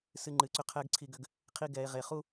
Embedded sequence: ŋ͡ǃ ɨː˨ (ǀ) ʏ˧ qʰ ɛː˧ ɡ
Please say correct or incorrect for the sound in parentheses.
correct